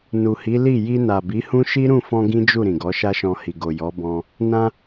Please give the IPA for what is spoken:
n u˨ h i˨˦ l i˦˨ j i˧ n a˨ b i˨˦ h ũ˦ ʃ i˦ ɾ ũ˦˨ f ɔ̃˧ ɡ ĩ˦ d͡ʒ u˦˨ ɾ ĩ˨ ɡ ɔ˨˦ ʃ a˦ ʃ ɔ̃˧ h i˨ ɡ o˨ j ɔ˨˦ b ɔ̃˧ | n ã˧

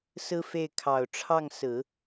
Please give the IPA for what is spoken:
s ɹ̩˥ f e˥˩ ɪ̯ kʰ ɑ˨˩ ʊ̯ ʈ͡ʂʰ ɑ˥˩ ŋ s ɹ̩˨˩˦

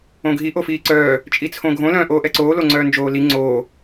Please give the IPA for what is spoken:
õ ɡʱ i ʔ o f iː ǀ œː | t͡ʃʼ i t͡sʰ õ ɡʱ õ l œ̃ ʔ oː ʔ ɛ ǀ oː l o ŋ͡ǀ œː n d͡ʒ oː l i ŋ͡ǀ oː

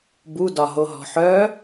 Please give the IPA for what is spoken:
b u d ɒ ɦ o ɦ ɔ̤ ħ œ

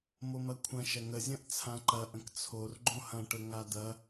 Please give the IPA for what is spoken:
m o m ɐ kʷʰ ɐ̃ ʃ ɐ ŋ ə zʲ ɐ̃ ʔ t͡sʰ ã ǃ ɐ ʔ ə̃ k t͡sʰ o r ɡ͡ǃ õ h ɐ̃ ʈ ə ŋ a d̪ ɐ

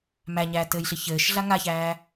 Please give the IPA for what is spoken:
m æ ɲ æː t ɘː j ɬ i ç ɘː ʃ ɮ a ŋ a ç æː

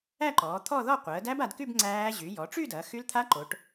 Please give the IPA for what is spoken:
æ˥˧ ǃ ɔː˩˧ t̪ʰ ɔ˥˧ ð ɔ˥˧ qʷ əː˩˧ d æ˦˥ b a˩˧ d k y˥˧ b ŋ͡ǀ æː˦˥ ʑ y˩˧ j ɔ˩˧ ʈ͡ʂ y˥˧ d ɐ˩˧ x y˦˥ l t̪ʰ a˦˥ ǃ o˩˧ ʈ

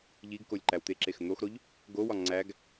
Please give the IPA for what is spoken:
ʎ i ɡ k o lʲ ǃ æ w t̪ e ǁ e x n̪ o x ɾ o ʎ | ɡ o w ɒ ŋ͡ǀ æ ɡ

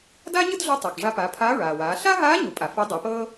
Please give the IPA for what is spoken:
d aː˥ ɲ ɯ˥ d ɮ o˧˥ tˤ ɤ˩ k ʐ a˧ p aː˩˧ pʰ aː˧˥ ɹ aː˩ w aː˩˧ ɬ a˥ ɦ aː˧˥ ɲ u˩˧ pʼ a˩ f e˧˥ dˤ e˩˧ p ɤː˥

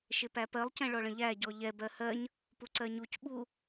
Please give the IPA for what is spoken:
ʃ ɪ p æ p ɜ lˠ c ɛ̃ ɭ ɔ ɭ ə̃ ʎ æ ɟ ɔ ʎ ɛ b ɜ h ɜ ɲ | p u ǀ ɜ ɲ u c ɓ u

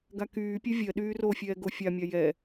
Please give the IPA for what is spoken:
ɡ a k yː pʲ e vʲ ɜ ɗ yː r o fʲ ɛː ɡ o fʲ a mʲ a j ɛ

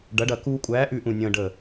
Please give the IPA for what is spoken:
ɖ ɐ˨˥ ɖ ɐ˧˩ k uː˧ kʷʼ æː˨˥ ʔ ʉ˧˩ ʔ ũ˧˩ nʲ ə̃ː˧ ɖ ə˧˩

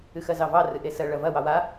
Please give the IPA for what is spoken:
ɨ x ɜ z ɑ v ɑ r ɨ ʔ e s ɜ ɭ ɐ v ɐ w ɑ w a

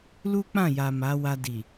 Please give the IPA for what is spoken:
l u˦ k͡p ã˦˨ j a˨ m a˨˦ w a˧ d i˨

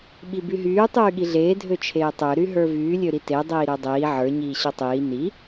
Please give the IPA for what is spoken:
ɓ i b y ɦ yː tˤ yː ɠ i ɮ eː dʱ ø t͡ʃʰ eː tˤ ø ɾ y ɦ ə˞ v yː lʲ ø ɾ i t e dˤ iː ɾ ø dˤ iː ʕ ə˞ ɲ iː ɕ ə˞ tˤ iː n i

